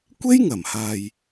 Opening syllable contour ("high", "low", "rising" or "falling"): high